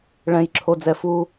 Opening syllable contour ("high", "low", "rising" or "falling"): high